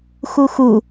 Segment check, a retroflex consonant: absent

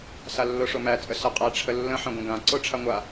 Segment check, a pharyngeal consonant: present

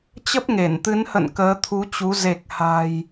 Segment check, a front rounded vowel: absent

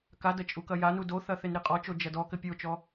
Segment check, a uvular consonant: present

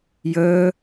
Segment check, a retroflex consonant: absent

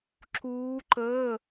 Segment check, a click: present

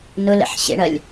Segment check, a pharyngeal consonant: present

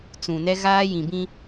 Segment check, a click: absent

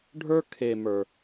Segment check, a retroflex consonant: present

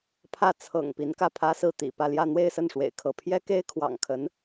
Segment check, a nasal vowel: absent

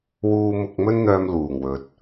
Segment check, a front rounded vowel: present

